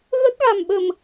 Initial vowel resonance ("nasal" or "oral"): oral